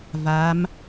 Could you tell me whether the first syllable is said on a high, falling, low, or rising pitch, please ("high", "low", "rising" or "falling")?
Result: rising